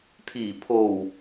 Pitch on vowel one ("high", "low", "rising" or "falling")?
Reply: low